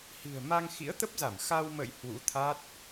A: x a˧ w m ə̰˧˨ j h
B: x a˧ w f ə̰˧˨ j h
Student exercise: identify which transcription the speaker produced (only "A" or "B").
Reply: A